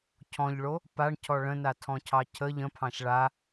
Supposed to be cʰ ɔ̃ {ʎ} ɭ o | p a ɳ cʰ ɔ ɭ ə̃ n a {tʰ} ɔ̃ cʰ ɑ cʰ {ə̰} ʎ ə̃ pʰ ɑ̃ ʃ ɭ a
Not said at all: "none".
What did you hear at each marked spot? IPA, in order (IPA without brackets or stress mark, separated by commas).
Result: ʎ, tʰ, ə